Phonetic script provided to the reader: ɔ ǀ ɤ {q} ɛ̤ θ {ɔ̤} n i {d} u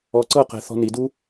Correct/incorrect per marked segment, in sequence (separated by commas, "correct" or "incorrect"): correct, correct, correct